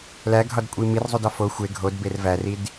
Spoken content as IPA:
læɡʱɒdkʷʼi mirzˤudɒ fo xʷe ɡʱodber værid

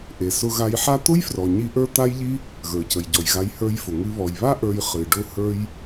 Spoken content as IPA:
ʔe˩ sʊ˧ɣa˧jħa˥ t̪ʊ˥jfrɔ˩ɲi˧ ʔə˞˥t̪a˥jʎi˥ | ɣə˞˩cə˩jɟɔ˩jɣa˧j hə˞˧jfʊ˩ŋɨ˧ βɔ˩jβa˥ ʔə˞˧j χɨ˩ ɖʊ˧hə˞˧j

